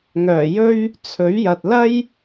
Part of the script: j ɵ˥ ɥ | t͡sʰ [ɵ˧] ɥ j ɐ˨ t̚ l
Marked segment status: incorrect: ɵ˨˥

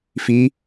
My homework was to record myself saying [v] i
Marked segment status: incorrect: f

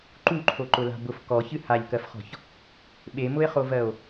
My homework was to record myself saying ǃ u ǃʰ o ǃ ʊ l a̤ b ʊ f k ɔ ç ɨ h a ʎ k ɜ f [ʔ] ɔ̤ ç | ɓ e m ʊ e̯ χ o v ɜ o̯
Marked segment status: incorrect: χ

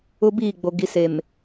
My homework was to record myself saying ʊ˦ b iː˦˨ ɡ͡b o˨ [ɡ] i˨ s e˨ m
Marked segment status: correct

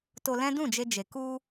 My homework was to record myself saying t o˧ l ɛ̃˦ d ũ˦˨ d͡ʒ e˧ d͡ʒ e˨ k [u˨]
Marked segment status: incorrect: u˧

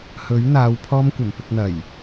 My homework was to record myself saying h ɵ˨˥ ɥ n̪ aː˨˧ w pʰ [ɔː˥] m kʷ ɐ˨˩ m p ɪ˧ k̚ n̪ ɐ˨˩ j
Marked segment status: correct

